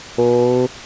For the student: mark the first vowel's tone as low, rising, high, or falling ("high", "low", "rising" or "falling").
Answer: high